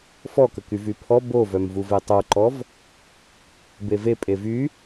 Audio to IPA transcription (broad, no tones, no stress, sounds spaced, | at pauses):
f ɔ k ə k y v y pʰ ɔ b o v œ m v u v e tˤ o ǃ ɔ v | b e v e pʼ e v y